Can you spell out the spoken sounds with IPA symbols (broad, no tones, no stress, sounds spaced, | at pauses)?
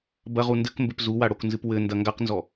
b ɐ ʁ u n d ɘ k m b ɘ p z u w a ɽ o k n z ɨ p w ɘ n d ɐ ŋ ɡ a q n z ɔ